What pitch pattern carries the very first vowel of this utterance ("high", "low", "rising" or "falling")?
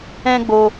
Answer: high